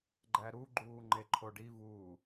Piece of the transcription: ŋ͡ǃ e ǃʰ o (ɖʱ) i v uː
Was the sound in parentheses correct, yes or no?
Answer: no